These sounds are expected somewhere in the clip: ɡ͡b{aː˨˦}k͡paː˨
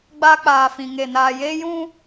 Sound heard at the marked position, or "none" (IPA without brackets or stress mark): aː˧